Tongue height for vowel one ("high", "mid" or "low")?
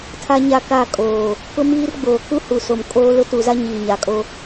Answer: low